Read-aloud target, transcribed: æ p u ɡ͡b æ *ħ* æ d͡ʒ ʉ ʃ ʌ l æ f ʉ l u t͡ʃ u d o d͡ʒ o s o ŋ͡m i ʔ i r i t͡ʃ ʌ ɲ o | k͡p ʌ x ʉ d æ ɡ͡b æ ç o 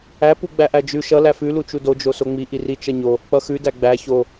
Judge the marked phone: incorrect: ʔ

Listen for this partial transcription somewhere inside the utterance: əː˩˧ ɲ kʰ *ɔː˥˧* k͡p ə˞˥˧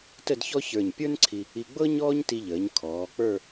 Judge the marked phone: incorrect: ɔː˩˧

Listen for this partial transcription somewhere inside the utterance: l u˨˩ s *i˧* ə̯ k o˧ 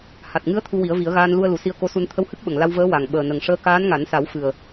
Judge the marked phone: correct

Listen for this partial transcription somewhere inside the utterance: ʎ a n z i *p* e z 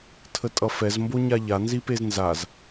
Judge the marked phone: correct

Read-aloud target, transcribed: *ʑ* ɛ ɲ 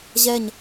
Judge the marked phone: correct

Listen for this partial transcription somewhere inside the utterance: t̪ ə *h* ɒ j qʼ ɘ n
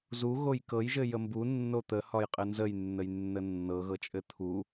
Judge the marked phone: correct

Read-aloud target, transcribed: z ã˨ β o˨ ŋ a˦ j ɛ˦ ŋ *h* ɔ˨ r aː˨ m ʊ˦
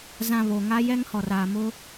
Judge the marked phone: correct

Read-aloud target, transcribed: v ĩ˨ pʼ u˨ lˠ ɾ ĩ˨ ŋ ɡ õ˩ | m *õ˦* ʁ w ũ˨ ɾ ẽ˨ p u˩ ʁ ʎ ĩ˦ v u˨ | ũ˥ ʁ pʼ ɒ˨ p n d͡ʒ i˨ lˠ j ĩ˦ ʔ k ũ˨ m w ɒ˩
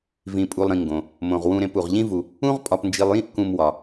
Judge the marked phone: incorrect: õ˩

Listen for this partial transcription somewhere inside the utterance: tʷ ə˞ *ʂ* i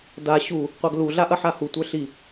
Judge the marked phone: incorrect: ɬ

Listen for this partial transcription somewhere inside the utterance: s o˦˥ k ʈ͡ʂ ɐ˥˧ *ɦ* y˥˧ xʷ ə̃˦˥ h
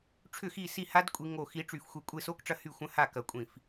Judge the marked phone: incorrect: h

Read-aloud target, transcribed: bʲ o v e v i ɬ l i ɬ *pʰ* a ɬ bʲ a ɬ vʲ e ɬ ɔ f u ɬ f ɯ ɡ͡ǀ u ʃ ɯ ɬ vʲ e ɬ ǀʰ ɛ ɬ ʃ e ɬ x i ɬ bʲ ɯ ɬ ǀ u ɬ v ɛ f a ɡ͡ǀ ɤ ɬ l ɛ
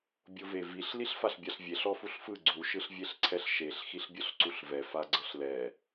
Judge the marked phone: incorrect: f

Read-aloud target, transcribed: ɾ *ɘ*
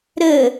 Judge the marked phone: correct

